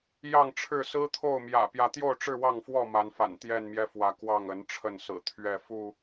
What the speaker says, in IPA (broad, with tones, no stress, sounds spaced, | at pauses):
j ɑ˥˨ ŋ ʈ͡ʂʰ ɻ̩˥˨ s ɹ̩˦ t̪ʰ o˥˨ ʊ̯ m j ä̰˨˩ p j ä˨˦ t̪ j o˥˨ ʊ̯ ʈ͡ʂ ɻ̩˥˨ w ɑ˥˨ ŋ f w ɔ˥˨ m a˨˦ n f a̰˨˩ n t̪ j ɛ˥˨ n m j ɛ˦ f w ä˨˦ k w ɑ˥˨ ŋ ə˨˦ n ʈ͡ʂʰ ə˥˨ n s ɹ̩˨˩ t̪ʰ ɥ ɛ˥˨ f u˥˨